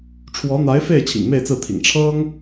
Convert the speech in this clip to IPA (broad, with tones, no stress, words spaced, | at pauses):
ʈ͡ʂʰwɔ˧˥n̪a˧˥ɪ̯fe˥˩ɪ̯ t͡ɕʰḭ˨˩ŋme˥˧ɪ̯t͡sɹ̩˥˩t̪ʰḭ˨˩ŋ ʈ͡ʂʰɤ˥ŋ